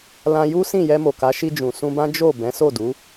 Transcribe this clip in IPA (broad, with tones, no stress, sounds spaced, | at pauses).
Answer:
l ã˧ j u˦ s ĩ˦˨ j ɛ˧ m o˨ k a˨˦ ʃ i˧ d͡ʒ ũ˨ s ũ˧ b ã˦ d͡ʒ o˦˨ b ɛ̃˨˦ s o˦˨ d u˨˦